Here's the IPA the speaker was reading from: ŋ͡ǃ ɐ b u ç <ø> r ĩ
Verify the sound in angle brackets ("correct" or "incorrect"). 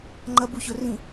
incorrect